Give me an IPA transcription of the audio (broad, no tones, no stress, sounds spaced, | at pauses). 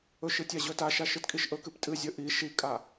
ɵ ʃ ɨ tʲ a ʑ ɵ t a ʃ a ʃ ɨ t kʼ i ʃ ʔ ɵ k ɨ p tʼ ɨ zʲ ɵ ʔ i ʃ i kʼ a